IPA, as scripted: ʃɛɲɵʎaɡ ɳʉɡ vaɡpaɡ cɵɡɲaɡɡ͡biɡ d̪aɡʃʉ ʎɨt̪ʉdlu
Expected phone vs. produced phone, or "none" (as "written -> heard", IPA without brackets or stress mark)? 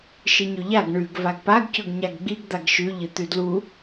ɛ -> ɨ